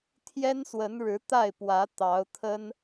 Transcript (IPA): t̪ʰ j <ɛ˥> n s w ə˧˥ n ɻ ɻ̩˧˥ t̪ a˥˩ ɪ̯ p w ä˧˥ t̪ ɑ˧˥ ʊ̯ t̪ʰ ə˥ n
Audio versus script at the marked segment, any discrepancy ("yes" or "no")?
no